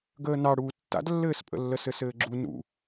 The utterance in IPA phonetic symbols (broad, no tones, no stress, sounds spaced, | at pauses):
ɡ əː n ɑ ɽ uː tː a̰ d lː ɘː s pʼ ə̰ lː ə s ɘ s ɘː ɡ͡ǁ u n ṵ